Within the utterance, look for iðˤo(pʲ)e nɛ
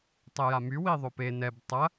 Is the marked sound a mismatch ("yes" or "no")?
yes